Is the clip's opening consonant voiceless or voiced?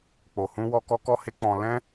voiceless